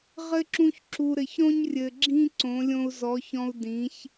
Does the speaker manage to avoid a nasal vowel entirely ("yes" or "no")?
no